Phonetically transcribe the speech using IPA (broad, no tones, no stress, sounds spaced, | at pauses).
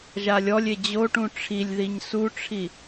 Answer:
ʒ a lʲ ɔ lʲ e d͡ʑ o ʈ ũ ʈ͡ʂʰ i lʲ ð i ɲ s u ʈ͡ʂʰ i